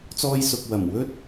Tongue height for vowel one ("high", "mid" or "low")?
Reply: mid